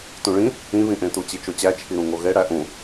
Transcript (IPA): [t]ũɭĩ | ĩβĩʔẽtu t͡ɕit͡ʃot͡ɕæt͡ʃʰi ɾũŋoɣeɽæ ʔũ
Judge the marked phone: correct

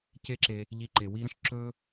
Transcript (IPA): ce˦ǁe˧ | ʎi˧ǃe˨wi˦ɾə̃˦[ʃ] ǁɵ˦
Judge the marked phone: correct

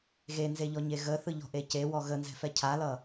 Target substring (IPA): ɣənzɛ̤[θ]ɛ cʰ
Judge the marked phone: incorrect: f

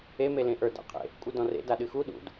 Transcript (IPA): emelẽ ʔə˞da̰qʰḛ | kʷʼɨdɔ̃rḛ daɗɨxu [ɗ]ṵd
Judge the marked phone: correct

